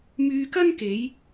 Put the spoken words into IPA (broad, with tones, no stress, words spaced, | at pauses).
myː˧kɐ˥nke˨˧j